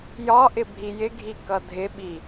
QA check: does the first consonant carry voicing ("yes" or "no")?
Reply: yes